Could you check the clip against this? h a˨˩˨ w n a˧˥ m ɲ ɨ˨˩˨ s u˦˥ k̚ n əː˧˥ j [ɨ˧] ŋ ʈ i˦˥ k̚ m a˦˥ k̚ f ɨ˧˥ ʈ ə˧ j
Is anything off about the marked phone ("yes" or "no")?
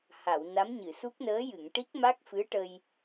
yes